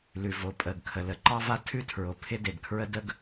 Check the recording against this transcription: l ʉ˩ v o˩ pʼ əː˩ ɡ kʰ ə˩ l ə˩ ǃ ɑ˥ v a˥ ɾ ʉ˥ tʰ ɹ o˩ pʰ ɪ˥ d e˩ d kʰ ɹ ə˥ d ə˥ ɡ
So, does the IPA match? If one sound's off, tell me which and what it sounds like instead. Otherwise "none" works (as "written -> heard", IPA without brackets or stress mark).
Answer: ɾ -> tʰ